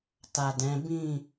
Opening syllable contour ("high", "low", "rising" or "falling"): low